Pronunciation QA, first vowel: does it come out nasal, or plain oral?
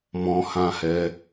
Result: nasal